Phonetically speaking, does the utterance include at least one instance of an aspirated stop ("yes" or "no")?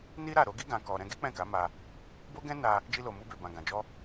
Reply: no